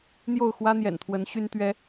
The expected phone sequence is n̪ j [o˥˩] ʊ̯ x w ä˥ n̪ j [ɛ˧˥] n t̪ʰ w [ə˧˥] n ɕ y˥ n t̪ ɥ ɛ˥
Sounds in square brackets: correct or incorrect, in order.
correct, incorrect, correct

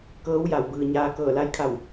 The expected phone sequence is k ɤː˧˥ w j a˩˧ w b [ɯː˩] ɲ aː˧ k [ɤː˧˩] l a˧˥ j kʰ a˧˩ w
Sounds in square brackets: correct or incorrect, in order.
correct, correct

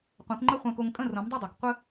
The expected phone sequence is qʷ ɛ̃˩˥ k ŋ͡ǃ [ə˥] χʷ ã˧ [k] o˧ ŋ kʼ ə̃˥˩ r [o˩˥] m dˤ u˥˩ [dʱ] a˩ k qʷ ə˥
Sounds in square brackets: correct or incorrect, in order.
correct, correct, incorrect, incorrect

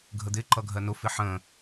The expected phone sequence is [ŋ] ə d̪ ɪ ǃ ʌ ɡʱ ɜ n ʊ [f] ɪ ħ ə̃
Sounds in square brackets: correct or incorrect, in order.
incorrect, correct

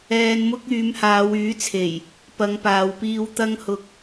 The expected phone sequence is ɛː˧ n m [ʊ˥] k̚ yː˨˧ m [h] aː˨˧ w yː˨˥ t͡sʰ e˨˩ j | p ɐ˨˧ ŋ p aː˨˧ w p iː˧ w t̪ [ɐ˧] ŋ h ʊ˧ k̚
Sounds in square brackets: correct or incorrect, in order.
correct, correct, incorrect

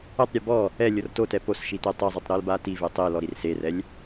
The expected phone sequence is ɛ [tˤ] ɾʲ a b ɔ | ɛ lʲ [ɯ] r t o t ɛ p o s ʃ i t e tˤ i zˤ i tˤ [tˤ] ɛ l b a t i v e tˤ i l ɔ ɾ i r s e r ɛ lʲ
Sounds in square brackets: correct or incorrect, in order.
correct, incorrect, incorrect

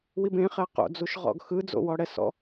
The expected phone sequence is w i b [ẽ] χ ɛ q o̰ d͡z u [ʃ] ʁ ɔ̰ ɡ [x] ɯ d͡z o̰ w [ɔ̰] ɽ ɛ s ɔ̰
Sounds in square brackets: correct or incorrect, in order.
correct, correct, correct, incorrect

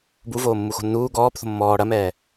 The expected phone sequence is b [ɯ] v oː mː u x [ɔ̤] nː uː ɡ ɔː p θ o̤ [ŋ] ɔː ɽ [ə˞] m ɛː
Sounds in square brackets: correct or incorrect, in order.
incorrect, incorrect, incorrect, incorrect

